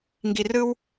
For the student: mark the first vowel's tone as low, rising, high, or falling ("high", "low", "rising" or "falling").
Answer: low